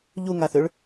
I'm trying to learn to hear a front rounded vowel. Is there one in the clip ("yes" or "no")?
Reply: yes